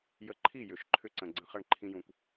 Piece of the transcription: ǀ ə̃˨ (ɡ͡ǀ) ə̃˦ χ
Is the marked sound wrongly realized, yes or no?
no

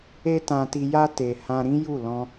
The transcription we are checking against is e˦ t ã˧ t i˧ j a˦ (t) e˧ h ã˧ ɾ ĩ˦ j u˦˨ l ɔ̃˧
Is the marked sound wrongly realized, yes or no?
no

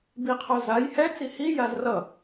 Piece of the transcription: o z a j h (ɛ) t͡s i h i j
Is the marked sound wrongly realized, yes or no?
no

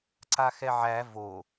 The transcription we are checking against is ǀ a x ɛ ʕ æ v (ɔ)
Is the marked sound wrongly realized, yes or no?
yes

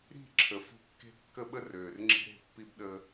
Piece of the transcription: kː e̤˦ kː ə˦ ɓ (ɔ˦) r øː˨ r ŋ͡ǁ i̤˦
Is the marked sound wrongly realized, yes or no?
yes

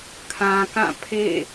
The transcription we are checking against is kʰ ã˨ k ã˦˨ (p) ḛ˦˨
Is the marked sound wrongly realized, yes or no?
yes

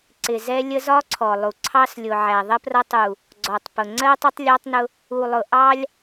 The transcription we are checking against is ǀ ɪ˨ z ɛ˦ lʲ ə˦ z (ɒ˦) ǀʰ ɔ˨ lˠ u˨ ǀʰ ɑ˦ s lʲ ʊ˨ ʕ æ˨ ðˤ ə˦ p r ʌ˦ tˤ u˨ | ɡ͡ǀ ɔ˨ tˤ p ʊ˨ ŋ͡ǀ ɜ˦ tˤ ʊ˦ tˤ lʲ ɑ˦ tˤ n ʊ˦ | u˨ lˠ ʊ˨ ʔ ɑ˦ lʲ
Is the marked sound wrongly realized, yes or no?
no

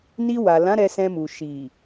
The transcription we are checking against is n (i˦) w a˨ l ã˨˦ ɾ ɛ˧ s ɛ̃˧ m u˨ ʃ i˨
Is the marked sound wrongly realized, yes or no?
yes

